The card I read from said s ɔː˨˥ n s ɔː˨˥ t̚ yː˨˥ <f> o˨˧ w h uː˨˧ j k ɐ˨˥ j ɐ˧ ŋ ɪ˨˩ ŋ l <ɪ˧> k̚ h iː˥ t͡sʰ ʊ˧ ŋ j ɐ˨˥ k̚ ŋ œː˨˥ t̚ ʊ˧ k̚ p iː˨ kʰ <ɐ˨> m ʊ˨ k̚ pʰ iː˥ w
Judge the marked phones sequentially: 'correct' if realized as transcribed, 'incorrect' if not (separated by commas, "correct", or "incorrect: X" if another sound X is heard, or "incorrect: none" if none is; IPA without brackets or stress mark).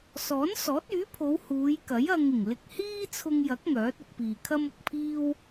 incorrect: pʰ, correct, incorrect: ɐ˥